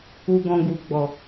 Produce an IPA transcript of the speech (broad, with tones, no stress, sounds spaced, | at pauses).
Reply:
u˧ ɡ ɔ̃˧ ɡ u˨ ɡ͡b ɔ˨